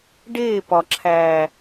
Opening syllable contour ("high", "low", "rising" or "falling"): falling